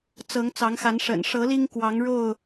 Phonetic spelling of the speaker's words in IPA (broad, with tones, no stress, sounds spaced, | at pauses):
t͡s ɤ˨˦ ŋ t͡s ɑ˨˦ ŋ x a˨˦ n ʂ ə̰˨˩ n ʂ ɤ˨˦ l i˦ ŋ k w ɑ˨˦ ŋ ɻ o˥˨ ʊ̯